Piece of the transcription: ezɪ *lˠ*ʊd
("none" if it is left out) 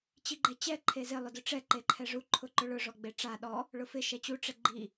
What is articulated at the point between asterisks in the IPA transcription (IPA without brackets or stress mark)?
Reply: lˠ